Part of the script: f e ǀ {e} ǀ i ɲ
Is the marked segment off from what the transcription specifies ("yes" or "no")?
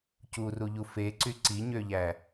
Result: yes